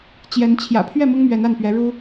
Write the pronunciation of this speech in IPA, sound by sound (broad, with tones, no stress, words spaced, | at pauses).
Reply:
t͡ɕjɛ˨˦nt͡ɕʰjä̰˨˩ pʰɥɛ˥˨mʊ˦ŋ mɥɛ˨˦na˥˨npɥɛ˨˦ ɻu˦